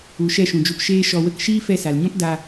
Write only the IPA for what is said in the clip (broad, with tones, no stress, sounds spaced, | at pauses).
u˨ ʃ ɛ˦˨ ʃ ũ˨ d͡ʒ u˧ p ʃ eː˦ ʃ ɔ˧ w ə˦ k ʃ iː˦ f ɛ˧ s a˨ l ɲ ɔ̃˦ p d a˧